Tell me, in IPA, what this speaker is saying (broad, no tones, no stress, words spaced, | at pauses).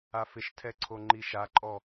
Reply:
afɪʃtʰɛ ǀʰoŋ͡ǃiʃaǃʼɔ